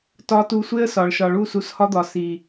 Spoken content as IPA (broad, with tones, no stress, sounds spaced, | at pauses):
t ɒ˧ t u˧ sʷ e˦ ə̯ s ɒ˨ ɭ ʃ ɒ˨ ɭ u˦˨ s u˧ s h ɒ˦ d̪ ɒ˨ s i˨